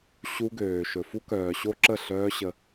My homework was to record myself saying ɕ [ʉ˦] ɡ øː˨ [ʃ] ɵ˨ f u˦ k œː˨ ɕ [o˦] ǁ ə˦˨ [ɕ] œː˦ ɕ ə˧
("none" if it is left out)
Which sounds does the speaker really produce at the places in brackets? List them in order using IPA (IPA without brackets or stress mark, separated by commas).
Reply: u˦, ʃ, o˦, ɬ